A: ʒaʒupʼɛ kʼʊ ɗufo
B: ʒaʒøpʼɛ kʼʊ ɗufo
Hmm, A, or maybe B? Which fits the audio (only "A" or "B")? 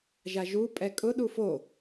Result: A